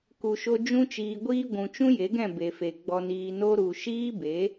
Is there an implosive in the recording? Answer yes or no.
no